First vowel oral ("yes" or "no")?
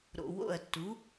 yes